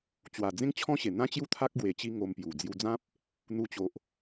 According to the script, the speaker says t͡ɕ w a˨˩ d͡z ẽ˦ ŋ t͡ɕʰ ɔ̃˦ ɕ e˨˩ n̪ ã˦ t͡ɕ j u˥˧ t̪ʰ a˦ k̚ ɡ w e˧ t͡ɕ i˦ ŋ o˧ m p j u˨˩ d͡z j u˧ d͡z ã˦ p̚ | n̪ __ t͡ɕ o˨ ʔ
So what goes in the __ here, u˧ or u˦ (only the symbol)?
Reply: u˧